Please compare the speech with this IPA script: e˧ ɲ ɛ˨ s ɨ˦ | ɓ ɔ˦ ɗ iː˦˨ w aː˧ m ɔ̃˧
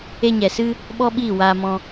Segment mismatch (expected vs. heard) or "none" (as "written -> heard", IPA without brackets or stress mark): ɗ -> ɓ